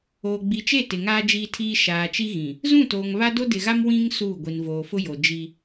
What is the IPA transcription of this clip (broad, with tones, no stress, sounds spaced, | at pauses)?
oː˨ ɡ͡b i˨ t͡ʃ e˦˨ t ɪ˨ ŋ aː˦ d͡ʒ iː˦ tʰ iː˦ ʃ aː˨ t͡ʃ i˦ ɣ ĩ˨ | z ũ˦˨ t oː˨ ŋ β a˦ d o˦ d ɪ˨ ɣ a˦ m w ĩ˦ ŋ s uː˦˨ ɡʷ i˨ n v oː˨ f ʊ˦ j o˨ d͡ʒ i˦